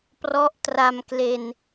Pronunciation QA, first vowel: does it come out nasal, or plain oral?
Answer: oral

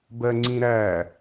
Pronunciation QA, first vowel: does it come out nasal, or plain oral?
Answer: oral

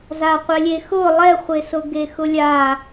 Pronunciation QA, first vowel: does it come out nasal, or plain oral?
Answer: oral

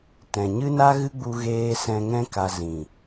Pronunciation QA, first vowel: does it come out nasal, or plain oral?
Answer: nasal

